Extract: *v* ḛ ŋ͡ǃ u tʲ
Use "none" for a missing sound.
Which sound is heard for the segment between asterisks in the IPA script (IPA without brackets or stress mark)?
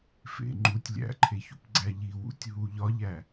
f